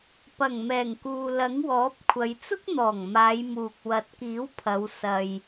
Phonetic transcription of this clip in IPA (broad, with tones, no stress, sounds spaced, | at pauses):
p ɐ˨˩ ŋ m ɛː˨˩ ŋ k uː˨ l ɐ˨˥ ŋ w ɔː˨˥ p̚ kʷʰ ɐ˨˧ j t͡s ʊ˥ k̚ n̪ ɔː˨˩ ŋ m aː˨˧ j m uː˨ k̚ w ɐ˨˥ t̚ k iː˨˥ w pʰ ɐ˨˧ w s ɐ˧ j